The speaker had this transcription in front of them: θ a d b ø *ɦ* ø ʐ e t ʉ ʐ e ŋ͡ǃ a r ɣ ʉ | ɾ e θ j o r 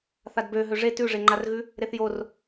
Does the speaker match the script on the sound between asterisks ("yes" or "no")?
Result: yes